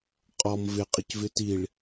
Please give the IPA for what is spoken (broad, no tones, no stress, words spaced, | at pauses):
qʼɔm vɪ qʼɪcvɪtiɭ